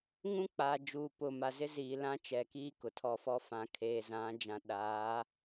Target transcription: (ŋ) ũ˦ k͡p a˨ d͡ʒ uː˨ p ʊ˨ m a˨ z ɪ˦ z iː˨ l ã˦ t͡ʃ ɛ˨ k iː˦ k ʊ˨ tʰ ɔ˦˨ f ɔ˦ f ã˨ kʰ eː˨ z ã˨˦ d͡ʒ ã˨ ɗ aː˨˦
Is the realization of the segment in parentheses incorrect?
no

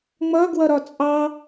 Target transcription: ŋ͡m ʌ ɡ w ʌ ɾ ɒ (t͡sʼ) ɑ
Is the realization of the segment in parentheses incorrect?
no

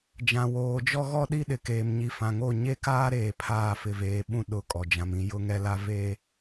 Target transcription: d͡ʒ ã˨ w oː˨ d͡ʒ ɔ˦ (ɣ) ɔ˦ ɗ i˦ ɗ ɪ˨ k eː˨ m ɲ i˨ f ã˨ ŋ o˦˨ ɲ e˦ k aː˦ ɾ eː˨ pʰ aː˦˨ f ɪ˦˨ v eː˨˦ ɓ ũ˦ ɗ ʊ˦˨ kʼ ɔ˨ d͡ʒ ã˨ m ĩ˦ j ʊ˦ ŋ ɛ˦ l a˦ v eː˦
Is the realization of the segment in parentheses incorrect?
no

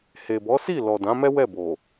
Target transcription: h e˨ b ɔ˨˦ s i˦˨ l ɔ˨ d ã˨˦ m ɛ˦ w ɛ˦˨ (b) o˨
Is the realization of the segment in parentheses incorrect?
no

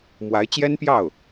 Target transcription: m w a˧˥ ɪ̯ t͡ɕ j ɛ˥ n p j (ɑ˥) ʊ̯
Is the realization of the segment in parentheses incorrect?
yes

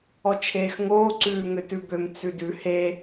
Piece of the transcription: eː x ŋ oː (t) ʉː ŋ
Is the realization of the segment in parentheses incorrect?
yes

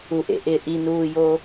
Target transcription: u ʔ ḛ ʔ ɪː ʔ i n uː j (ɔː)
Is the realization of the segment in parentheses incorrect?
yes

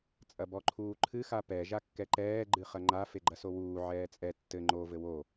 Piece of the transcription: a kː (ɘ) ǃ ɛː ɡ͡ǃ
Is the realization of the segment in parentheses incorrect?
yes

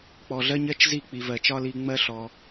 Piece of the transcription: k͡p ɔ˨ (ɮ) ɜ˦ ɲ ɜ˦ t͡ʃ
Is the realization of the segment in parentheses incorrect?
no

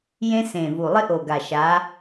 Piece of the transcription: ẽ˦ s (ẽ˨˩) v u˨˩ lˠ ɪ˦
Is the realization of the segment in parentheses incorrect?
no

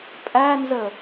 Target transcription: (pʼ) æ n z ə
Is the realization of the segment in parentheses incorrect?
no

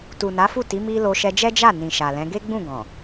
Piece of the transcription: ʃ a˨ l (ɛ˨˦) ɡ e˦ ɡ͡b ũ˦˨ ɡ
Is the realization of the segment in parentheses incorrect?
yes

